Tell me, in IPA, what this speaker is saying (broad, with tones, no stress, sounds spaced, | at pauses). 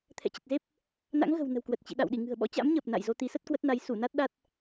t̪ʰ ɛ̰˧˨ t͡ɕ ə˨˩ t̚ z e˦˥ p̚ | n a̰˧˥ ŋ ɣ ə̤˨˩ w n ə̤˨˩ w k w ə˨˩ t̚ t͡ɕ ḭ˧˨ ɗ a̰˧˨ w ɗ i˧˩ ŋ ɨ̤˨˩ ə̯ ɓ ɔ̰˧˥ t͡ɕ a̰˧˥ m ɲ əː˨˩ p̚ n a̰˧˨ j z o˧ t̪ i˨˦ s ə˦˥ t̚ k w ə˦˥ t̚ n a˨˦ j s u˧˩ n a˦˥ t̚ ɗ a˦˥ t̚